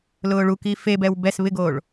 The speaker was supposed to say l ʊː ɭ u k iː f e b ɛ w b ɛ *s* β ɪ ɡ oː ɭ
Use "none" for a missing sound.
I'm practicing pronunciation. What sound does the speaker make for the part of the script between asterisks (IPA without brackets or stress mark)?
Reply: s